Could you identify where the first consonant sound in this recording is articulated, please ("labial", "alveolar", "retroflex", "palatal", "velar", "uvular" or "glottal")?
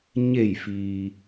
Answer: palatal